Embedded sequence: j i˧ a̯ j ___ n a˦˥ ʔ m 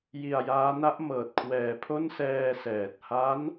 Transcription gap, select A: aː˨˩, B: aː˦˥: B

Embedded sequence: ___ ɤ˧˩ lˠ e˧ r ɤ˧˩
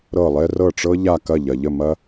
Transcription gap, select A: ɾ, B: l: A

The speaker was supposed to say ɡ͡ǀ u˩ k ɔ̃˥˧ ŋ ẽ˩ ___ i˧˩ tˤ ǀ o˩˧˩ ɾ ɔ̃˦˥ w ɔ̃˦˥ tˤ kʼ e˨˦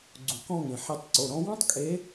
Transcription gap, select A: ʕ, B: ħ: B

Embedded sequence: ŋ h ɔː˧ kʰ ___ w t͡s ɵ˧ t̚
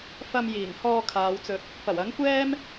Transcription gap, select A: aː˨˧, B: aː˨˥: A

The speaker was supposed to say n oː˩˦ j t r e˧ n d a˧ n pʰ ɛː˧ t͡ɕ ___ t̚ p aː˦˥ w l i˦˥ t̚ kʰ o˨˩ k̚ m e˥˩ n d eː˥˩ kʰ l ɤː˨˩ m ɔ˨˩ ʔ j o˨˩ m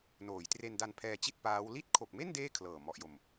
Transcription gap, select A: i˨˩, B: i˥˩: B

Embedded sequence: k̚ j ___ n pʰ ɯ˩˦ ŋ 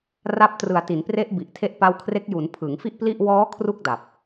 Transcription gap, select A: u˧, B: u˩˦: B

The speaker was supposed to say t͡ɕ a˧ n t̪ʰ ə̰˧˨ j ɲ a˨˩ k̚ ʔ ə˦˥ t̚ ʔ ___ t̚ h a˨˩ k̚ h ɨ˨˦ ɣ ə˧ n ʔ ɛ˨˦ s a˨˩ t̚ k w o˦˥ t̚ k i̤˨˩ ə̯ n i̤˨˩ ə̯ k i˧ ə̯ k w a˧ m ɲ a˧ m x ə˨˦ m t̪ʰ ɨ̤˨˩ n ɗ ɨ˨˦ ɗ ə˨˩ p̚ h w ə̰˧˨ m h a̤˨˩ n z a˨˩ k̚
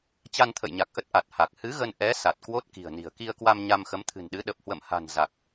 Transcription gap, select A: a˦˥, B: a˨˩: B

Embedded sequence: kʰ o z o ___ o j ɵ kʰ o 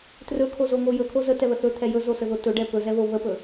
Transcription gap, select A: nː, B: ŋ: B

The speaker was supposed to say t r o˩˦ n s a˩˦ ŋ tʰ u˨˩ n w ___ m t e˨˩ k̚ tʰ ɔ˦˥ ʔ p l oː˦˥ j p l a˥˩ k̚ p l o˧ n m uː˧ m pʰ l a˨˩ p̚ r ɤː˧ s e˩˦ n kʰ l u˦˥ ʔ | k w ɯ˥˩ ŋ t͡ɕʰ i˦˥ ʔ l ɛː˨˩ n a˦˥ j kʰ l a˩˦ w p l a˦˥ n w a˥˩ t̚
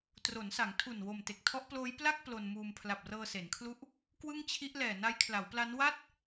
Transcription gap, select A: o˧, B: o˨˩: B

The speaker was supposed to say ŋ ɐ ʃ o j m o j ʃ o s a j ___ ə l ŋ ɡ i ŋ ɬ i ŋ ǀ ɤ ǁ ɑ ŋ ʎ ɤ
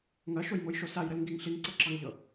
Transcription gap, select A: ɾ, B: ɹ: A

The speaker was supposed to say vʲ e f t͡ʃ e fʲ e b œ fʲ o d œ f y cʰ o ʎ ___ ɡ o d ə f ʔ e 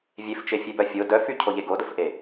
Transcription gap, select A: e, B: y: A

